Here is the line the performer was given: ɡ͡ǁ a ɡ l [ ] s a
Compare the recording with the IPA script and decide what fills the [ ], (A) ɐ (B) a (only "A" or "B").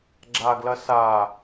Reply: A